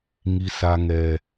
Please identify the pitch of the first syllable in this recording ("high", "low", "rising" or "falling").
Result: high